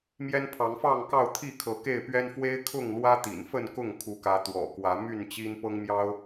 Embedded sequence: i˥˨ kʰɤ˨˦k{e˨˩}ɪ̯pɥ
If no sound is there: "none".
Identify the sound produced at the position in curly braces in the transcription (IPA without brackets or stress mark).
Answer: e˥˨